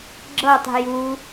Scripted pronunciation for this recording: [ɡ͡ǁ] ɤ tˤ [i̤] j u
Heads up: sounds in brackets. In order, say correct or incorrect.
correct, correct

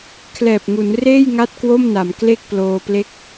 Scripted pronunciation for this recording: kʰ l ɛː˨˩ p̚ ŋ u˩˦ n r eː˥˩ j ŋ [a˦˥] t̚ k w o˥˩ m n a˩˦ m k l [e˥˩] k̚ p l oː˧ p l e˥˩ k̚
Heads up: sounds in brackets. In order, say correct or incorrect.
incorrect, correct

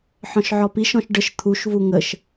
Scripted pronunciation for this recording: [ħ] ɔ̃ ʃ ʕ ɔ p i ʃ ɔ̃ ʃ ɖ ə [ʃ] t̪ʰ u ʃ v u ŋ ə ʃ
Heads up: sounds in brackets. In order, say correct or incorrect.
correct, correct

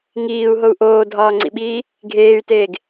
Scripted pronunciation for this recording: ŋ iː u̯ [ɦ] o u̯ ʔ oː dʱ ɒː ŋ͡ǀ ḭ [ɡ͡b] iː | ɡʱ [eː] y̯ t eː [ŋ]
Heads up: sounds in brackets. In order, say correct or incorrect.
correct, incorrect, correct, incorrect

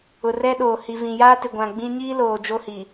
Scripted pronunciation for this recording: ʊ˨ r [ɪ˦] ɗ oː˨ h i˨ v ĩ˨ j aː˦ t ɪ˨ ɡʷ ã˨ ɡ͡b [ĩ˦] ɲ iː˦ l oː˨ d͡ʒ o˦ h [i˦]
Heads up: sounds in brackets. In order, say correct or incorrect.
incorrect, correct, incorrect

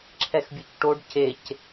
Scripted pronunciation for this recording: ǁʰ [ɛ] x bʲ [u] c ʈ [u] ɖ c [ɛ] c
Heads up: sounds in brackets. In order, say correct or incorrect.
correct, correct, incorrect, incorrect

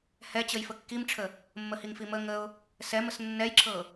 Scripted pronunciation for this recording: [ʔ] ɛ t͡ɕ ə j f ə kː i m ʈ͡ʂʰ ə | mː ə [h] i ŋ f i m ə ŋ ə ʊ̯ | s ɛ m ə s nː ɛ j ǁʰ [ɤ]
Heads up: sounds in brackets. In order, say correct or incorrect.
incorrect, correct, correct

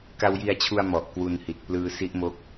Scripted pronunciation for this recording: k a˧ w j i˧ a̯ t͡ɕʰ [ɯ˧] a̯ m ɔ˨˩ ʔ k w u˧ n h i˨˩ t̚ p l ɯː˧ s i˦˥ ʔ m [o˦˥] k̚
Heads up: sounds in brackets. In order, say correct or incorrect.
incorrect, correct

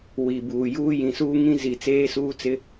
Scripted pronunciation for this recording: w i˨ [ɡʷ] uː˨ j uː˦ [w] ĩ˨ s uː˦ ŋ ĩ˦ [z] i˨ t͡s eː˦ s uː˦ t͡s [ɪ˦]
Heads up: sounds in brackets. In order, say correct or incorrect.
incorrect, incorrect, correct, correct

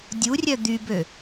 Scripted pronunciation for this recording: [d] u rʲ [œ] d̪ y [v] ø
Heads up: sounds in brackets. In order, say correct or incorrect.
incorrect, correct, incorrect

